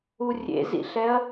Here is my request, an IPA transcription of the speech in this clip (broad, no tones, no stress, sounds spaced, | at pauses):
u rʲ ḛ z ḭ ɬ ɛ ɐ̯